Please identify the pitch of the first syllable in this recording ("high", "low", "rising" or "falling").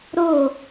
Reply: falling